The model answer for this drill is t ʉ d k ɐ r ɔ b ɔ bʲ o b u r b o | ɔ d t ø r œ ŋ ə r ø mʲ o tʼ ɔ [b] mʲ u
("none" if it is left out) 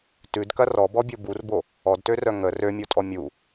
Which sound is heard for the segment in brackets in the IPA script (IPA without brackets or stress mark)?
none